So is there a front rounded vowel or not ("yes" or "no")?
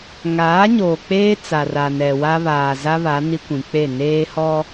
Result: no